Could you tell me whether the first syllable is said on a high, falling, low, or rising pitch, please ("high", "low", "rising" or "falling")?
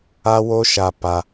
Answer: high